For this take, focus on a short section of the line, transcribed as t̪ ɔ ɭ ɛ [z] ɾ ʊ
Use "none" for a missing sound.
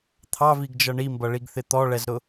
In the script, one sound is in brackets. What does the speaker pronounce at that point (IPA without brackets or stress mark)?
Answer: z